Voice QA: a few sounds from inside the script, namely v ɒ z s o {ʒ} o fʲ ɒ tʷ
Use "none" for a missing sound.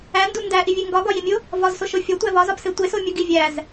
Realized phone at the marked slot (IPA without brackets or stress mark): ʃ